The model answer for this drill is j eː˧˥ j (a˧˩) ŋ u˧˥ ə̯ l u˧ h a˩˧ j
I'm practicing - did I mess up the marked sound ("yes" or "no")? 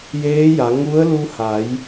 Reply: yes